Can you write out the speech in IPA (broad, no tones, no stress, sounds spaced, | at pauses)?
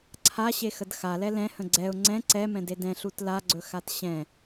ǀʰ a ɕ e x ə d x a l ɛ l ɛ̃ h ə̃ ɡ͡ǀ ɛ ʊ̯ ŋ͡ǀ ɛ̃ ǀ ɛ m ɛ̃ d e d ɛ̃ ɬ u t l a ɡ͡ǀ ɵ x a t ɕ ɛ̃